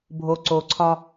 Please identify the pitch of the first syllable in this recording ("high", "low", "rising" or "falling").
low